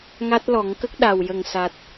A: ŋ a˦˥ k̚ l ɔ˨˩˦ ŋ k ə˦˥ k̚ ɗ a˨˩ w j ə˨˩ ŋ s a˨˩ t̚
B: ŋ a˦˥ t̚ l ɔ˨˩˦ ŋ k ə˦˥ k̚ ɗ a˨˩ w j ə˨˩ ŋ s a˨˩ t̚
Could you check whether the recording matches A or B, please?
B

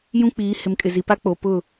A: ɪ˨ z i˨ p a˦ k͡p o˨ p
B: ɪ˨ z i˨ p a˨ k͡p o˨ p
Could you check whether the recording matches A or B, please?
A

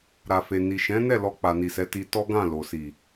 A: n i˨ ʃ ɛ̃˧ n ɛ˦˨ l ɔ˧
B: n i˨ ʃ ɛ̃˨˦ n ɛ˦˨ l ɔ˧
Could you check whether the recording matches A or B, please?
B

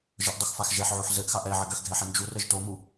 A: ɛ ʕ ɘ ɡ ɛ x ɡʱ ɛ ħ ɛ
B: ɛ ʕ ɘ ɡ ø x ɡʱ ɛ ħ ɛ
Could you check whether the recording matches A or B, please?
B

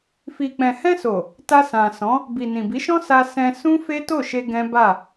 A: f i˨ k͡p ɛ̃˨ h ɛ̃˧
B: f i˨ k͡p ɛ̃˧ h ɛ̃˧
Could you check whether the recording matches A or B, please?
A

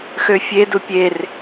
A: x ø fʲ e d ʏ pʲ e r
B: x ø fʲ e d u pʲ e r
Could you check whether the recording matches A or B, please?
B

